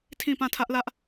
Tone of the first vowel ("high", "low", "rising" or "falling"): falling